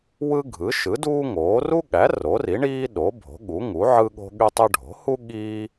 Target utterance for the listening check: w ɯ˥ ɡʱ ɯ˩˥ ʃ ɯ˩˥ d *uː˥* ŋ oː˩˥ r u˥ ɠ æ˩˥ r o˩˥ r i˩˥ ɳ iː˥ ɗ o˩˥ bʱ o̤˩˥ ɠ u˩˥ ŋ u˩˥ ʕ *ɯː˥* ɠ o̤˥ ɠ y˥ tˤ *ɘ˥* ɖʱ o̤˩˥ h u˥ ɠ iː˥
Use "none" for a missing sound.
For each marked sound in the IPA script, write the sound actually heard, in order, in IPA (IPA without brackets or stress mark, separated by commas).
uː˥, ɯ˥, ø˥